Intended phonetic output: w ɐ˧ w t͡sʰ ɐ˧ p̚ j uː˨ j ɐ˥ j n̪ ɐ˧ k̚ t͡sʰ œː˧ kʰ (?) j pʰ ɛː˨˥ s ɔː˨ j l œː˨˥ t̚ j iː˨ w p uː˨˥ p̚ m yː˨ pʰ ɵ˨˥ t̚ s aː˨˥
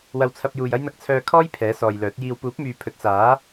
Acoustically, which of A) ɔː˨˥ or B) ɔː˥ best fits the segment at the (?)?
B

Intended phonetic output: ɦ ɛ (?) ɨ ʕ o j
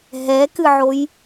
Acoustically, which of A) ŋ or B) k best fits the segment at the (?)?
B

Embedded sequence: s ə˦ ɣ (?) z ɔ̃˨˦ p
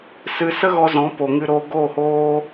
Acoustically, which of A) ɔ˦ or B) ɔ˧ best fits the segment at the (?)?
B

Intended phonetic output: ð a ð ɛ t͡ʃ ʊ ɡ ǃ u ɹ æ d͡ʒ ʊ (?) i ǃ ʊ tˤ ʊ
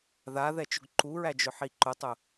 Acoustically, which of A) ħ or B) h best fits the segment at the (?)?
A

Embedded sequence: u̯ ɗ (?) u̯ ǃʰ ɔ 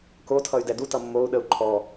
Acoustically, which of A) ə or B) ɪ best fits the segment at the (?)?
A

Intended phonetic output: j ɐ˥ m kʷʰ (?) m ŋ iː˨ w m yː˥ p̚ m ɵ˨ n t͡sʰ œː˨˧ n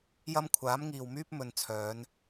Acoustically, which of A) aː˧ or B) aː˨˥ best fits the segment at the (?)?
B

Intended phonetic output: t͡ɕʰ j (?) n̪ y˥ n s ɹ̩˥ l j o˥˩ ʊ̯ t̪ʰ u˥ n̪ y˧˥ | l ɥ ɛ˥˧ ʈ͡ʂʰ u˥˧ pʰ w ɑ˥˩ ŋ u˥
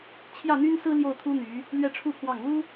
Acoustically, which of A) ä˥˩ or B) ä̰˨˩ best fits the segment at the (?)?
A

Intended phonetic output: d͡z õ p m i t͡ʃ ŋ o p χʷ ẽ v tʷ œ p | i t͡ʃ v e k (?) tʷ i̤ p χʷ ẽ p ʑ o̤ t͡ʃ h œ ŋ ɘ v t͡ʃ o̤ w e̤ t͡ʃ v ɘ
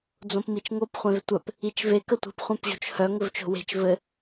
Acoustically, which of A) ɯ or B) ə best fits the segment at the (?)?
B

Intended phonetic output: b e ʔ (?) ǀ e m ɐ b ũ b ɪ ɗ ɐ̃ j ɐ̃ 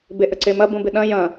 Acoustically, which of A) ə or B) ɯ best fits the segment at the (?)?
A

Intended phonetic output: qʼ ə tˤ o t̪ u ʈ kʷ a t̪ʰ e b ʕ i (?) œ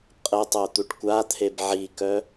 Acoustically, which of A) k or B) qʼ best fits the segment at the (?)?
A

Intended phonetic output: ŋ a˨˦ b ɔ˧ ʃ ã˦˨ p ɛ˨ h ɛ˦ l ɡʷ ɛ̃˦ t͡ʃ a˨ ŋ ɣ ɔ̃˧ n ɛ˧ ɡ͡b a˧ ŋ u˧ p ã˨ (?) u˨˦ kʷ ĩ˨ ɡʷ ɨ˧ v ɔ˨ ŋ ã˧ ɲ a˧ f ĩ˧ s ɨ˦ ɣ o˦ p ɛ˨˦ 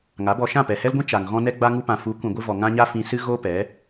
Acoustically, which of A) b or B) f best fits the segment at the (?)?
B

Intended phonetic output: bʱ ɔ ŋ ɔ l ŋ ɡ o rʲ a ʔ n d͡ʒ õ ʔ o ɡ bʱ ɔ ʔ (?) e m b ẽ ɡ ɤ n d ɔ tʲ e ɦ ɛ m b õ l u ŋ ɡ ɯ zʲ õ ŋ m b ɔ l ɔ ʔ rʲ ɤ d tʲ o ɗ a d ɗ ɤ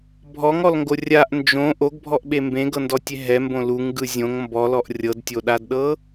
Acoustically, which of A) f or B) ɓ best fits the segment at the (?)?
B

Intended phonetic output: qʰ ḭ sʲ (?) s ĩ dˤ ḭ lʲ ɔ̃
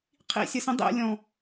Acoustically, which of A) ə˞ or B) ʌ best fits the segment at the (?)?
B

